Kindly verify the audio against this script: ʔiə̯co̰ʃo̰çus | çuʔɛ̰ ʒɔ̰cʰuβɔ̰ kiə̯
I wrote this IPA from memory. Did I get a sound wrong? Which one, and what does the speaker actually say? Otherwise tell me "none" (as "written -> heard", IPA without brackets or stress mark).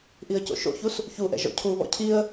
k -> cʰ